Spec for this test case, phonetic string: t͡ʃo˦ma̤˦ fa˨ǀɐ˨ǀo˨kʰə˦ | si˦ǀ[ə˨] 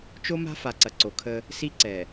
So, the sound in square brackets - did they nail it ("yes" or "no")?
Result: no